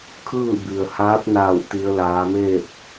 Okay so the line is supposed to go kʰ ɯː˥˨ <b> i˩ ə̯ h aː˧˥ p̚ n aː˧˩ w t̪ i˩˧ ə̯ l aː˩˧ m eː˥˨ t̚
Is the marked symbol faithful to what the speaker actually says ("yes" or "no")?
yes